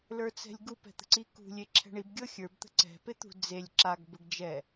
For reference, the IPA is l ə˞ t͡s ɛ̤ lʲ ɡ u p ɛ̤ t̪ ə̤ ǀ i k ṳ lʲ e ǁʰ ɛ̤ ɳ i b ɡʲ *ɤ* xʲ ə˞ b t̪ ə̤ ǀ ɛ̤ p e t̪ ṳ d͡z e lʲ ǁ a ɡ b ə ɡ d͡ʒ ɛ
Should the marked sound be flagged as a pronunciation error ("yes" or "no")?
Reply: no